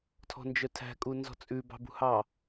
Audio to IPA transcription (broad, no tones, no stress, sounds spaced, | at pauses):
tʰ ɔ̤ n d͡ʒ œ tʰ æ̤ kʼ u n z ɔ̤ t͡sʼ ʉ b ɑ̤ b ṳ h ɑ